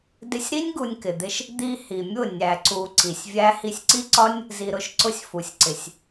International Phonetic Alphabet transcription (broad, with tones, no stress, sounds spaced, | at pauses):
d ɪ˧ sʲ ɾ i˦ nʲ ɡ u˧ nʲ k ɪ˨ d̪ ɪ˧ ʃ | d̪ i˧ h i˨ mʲ ʊ˦˨ nʲ æ˨ ǀ u˨ ǀ i˨ sʲ vʲ æ˦ h i˧ sʲ ǀ i˦ ǀ ɒ˦ nʲ | z i˨ ɾ ʊ˨˦ ʃ ǀ ʊ˧ sʲ f u˨ sʲ ǀ ɪ˨ sʲ